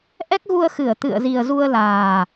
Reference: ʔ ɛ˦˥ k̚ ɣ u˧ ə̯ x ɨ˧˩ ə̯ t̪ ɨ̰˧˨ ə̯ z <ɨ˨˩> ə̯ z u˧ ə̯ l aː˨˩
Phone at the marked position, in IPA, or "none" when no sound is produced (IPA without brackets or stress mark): i˨˩